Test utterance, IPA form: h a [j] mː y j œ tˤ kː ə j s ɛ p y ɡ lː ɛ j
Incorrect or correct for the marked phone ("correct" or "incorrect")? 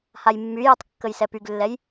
correct